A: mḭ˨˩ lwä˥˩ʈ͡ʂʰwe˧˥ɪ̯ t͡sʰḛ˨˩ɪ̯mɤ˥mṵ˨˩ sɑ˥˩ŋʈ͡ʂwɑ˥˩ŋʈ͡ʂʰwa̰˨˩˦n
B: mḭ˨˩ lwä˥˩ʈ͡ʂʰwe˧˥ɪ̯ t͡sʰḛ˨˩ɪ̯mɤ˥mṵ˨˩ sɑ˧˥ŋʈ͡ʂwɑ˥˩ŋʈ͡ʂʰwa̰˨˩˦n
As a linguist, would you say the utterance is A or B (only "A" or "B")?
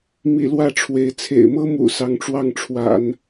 B